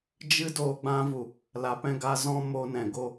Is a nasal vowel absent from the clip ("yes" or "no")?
no